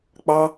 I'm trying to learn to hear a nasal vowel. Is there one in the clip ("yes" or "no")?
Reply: no